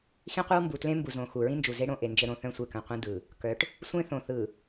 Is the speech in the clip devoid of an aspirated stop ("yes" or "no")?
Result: yes